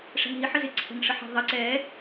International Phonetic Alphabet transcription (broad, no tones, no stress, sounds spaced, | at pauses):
ʂ ɛ̤ ŋ ɦ i ħ ɘ z ɪ ǀʰ ɛ̤ ŋ ʂ ə ħ ɛ̤ ðˤ ɪ ǀ ɛ